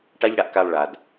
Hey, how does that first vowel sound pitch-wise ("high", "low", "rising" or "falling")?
high